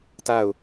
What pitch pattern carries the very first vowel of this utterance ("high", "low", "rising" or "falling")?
falling